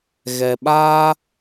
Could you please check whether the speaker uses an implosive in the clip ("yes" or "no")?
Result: yes